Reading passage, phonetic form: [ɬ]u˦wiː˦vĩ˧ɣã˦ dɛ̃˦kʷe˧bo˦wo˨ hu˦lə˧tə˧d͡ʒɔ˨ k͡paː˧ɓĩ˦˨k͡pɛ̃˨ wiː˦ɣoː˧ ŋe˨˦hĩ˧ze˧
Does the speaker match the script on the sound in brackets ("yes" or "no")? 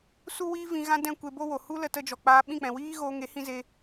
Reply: no